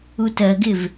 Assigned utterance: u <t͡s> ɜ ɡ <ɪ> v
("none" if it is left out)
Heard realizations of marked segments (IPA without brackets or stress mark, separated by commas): t, ɪ